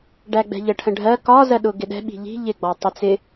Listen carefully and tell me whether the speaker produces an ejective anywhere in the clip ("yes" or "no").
no